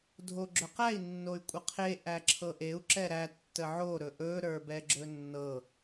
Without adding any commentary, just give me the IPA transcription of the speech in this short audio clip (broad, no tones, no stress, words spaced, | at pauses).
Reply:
dʱoɡ͡ǁɵqæi̯ nːoy̯kʷʼəqʰe ʔæǁʰɤʔeu̯ ǁɛɾæ tːəʕo ɾɵʔɵ ɾə˞bɛɡ͡ǁɵnːɤ